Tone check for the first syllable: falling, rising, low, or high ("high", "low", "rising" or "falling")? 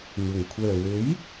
low